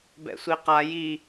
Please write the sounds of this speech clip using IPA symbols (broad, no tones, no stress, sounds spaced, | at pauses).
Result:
b ɛ̰ sʷ i q a j i